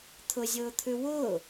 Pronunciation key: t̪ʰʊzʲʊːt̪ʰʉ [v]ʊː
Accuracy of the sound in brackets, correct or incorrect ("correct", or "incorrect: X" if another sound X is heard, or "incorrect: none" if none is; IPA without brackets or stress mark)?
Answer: incorrect: w